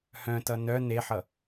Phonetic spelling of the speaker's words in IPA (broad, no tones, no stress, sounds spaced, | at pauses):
h œ̃ t ʌ n œ n e ħ ʌ